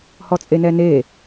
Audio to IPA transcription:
h ɔ t͡sʼ e n ɛ n e

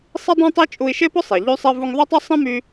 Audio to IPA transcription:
sˤ i˥ dˤ ɛ̃˥ tˤ i˥ t͡ʃʼ u˧ i̯ ʃ e˥ p ʊ˥ sˤ e˩ ʎ y˧ sˤ ɛ˧ v u˧ ŋ ðˤ u˥ tˤ ø˥ sˤ ɛ̃˥ m y˧

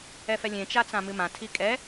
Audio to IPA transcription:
ɛ f ɛ lʲ ẽ t͡ʃ a t͡s ã m ɨ m ã tʰ i kʼ ɛ

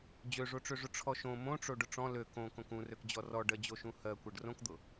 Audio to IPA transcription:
d͡ʑ ø ʐ o ʈ͡ʂ ø ʐ ʊ ʈ͡ʂʰ ɔ ʃ õ m õ ʈ͡ʂ o ɖ ʊ ʈ͡ʂ ɔ̃ l ø k õ k õ k ũ r ø k d͡ʑ ɔ r ɔ ɖ ɜ d͡ʑ o ʃ ũ h ɜ kʷ ɜ ɖ r õ k d̪ ʊ

